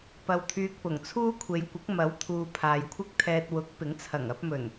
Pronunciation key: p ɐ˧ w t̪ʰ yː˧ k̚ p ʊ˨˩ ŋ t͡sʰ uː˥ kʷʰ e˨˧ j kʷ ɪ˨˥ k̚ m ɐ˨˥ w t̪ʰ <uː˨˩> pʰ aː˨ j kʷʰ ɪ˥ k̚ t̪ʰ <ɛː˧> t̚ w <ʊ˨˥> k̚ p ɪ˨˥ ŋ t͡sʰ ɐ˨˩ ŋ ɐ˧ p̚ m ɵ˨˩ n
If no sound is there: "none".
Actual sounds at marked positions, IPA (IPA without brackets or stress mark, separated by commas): uː˨, ɛː˧, ʊ˨˥